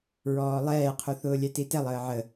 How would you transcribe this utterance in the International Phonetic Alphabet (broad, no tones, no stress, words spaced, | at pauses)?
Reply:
ɹɔːlˠɛːqʰu θʊːlʲɛtitɛlˠ əːʕə